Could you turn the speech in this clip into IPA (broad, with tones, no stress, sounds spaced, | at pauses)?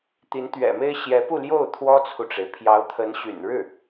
t̪ i˧˥ n t̪ ɥ ɛ̰˨˩ m e˥ ɪ̯ ɕ j ɛ˧˥ p u˥˧ l j o˥˩ ʊ̯ t̪ʰ w ɔ˥ t͡sʰ u˨ ʈ͡ʂ e˩ ɪ̯ pʰ j ɑ˧˥ ʊ̯ t̪ʰ ə˧˥ n ɕ y̰˨˩ n ɻ ɻ̩˥˩